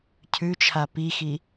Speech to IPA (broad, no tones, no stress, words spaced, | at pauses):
cʰʉt͡ʃʰa pixi